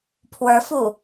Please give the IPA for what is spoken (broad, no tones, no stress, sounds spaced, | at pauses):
pʰ w ə˞ f uː